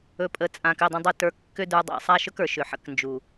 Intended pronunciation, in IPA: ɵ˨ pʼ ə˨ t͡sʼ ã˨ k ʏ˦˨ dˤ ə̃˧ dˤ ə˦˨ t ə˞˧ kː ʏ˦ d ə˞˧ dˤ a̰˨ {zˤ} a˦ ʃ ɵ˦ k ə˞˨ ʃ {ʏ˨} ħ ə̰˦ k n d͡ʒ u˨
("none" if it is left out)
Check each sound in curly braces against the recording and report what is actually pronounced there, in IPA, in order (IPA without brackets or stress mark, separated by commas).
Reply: sˤ, ʏ˨